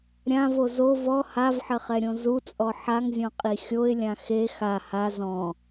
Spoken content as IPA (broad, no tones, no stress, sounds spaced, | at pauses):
ɾʲ ã v o z o v ɔ h a v ħ ɘ χ ɛ ɾʲ õ z u t͡sʼ ɔ ħ a ŋ zʲ ɔ̃ qʼ i xʲ o ɪ̯ lʲ ã x e x a h a z ɔ̃